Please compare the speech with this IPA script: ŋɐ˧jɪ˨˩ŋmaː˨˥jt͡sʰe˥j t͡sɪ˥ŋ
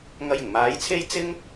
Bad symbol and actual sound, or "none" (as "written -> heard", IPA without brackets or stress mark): none